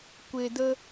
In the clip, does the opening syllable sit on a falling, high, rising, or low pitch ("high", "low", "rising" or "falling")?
low